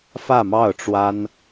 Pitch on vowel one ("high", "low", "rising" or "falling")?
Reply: falling